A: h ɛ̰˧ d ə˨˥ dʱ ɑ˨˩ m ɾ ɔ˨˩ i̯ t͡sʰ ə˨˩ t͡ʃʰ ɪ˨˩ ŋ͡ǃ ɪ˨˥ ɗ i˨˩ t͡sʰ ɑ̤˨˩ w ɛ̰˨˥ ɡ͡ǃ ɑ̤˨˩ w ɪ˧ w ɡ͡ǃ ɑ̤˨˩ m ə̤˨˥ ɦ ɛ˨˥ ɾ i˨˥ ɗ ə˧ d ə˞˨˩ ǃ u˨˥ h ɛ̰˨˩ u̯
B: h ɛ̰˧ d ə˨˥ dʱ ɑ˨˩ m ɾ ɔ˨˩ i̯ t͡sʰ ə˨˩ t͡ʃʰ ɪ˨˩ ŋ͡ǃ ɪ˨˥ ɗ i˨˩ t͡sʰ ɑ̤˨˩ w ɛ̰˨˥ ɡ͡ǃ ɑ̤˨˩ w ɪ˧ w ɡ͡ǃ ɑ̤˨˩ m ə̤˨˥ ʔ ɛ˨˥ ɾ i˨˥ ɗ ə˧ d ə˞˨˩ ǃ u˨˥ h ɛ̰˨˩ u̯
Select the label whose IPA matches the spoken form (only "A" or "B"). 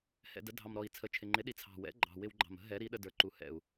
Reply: A